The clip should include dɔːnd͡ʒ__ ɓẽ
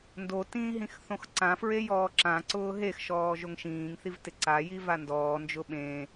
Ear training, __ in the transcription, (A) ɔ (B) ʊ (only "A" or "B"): B